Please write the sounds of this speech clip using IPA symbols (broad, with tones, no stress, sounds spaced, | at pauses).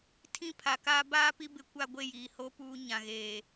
tʰ ĩ˦ pʰ a˨ k aː˦ b aː˦ p i˦ b ɪ˨˦ kʷ a˦ ɡʷ e˦˨ j iː˨ h o˦ p uː˦ ɲ ã˨ ɣ eː˨